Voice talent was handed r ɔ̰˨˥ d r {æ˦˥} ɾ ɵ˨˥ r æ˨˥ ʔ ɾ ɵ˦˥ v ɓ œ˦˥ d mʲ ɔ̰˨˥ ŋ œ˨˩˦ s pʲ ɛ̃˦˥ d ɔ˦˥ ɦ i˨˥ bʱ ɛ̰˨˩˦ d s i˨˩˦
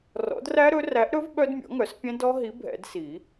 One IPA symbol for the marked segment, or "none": æ˦˥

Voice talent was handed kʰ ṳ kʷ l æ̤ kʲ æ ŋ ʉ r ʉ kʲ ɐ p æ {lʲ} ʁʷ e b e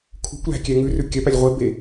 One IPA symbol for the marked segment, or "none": lʲ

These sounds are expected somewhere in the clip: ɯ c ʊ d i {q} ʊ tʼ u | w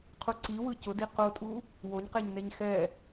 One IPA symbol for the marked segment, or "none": q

